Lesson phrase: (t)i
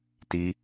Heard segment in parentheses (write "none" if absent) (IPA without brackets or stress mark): t